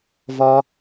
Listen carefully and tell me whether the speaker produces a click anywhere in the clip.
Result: no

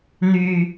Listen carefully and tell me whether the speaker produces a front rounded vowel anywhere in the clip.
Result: yes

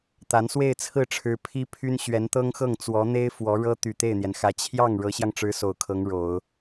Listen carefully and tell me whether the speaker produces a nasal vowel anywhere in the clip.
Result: no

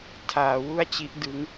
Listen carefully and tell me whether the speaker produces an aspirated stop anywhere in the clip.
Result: yes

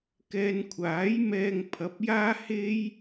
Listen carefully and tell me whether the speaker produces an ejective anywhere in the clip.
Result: no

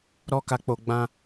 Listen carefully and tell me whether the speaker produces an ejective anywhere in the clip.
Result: no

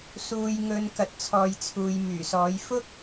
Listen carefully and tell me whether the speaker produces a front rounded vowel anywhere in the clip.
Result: yes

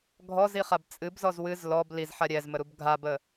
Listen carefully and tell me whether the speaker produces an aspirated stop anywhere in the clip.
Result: no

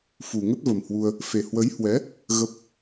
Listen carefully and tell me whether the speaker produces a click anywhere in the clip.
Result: no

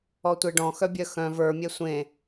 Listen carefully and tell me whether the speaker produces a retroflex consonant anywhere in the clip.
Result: yes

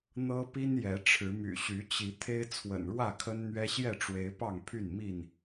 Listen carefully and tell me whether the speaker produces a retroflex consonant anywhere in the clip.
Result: yes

